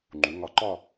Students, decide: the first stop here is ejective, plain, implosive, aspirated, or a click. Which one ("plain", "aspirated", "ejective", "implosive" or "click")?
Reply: click